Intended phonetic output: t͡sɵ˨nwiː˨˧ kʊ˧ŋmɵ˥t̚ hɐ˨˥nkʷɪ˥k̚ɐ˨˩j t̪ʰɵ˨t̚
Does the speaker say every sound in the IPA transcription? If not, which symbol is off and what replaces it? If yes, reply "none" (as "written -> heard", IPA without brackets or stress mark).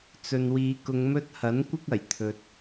none